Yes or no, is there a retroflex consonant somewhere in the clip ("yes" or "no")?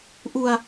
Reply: no